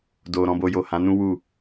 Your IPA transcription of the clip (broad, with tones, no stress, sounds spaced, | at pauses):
d o˨ ɾ ɔ̃˨˦ b o˦ j o˦˨ h ã˨˦ n ũ˦ w u˦˨